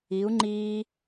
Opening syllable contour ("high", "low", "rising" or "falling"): rising